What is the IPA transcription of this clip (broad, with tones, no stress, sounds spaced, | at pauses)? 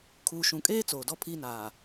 kʰ uː˨ ʃ ũ˨ kʼ eː˦ t͡s oː˨ d ɔ˦ pʰ iː˦ n aː˨